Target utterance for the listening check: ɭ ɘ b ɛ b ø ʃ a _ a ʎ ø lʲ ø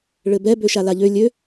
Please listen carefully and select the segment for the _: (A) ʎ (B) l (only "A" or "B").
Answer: B